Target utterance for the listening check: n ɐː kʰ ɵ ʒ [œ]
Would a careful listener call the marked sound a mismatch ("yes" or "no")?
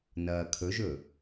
yes